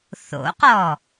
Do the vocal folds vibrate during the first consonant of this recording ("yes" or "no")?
no